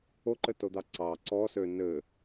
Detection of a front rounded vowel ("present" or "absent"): present